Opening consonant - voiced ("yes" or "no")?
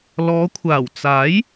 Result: yes